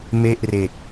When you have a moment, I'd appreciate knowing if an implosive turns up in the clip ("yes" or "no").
no